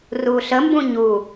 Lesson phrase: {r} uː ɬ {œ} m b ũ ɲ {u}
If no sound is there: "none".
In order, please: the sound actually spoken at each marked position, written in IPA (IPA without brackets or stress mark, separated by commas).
r, ə, u